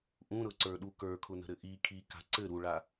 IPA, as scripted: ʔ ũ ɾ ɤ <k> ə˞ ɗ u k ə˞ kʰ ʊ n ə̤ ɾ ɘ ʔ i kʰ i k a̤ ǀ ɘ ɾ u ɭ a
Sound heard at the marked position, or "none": ǀ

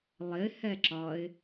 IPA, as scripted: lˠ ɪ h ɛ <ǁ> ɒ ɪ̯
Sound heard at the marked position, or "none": ǁ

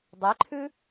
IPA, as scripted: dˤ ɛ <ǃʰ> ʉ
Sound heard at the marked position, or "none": ǃʰ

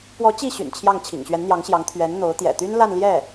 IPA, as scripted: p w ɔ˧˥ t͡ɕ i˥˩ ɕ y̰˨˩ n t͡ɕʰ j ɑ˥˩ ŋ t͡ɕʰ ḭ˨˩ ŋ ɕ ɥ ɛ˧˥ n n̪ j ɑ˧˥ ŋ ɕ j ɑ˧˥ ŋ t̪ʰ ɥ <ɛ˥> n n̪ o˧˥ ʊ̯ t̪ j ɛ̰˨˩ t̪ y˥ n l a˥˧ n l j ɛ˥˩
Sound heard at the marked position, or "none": ɛ˧˥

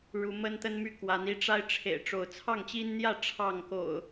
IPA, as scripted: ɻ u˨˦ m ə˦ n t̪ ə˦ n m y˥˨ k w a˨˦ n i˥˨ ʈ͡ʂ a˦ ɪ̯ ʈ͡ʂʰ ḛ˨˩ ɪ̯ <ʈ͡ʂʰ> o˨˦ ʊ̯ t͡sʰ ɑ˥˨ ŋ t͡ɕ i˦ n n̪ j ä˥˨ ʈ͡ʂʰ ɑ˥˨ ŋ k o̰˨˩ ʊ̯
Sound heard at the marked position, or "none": ʈ͡ʂ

